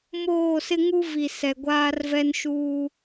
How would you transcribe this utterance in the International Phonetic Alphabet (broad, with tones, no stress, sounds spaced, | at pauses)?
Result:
m oː˦˨ s ɪ˦ ŋ u˦ v i˨ s ɛ˨ ɡʷ aː˦ r v ɛ˦ n ʃ uː˦